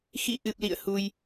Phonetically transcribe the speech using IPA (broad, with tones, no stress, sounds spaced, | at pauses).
x ḭ˧˨ ʔ ɨ˨˩ p̚ l ḭ˧˨ ə̯ h u˧ j